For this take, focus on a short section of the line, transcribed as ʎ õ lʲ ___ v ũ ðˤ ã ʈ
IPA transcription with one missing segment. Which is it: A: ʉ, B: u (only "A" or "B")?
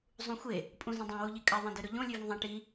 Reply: A